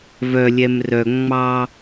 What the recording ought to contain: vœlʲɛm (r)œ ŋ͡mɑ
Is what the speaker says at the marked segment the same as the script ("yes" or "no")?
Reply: yes